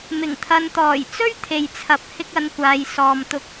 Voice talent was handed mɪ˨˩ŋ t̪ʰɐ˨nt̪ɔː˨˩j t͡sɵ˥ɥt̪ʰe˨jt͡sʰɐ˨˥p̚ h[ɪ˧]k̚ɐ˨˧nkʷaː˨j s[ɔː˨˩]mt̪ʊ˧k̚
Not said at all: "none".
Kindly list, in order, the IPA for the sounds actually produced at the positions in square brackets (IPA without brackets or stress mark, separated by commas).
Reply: ɪ˧, ɔː˨